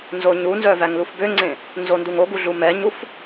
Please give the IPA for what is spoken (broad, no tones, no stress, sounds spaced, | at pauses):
n z o ɲ u n z œ v æ ŋ l u f b ø ŋ͡ǀ ẽ | n z o n d u ŋ o ɡ u ɮ u m ɛ ɲ u f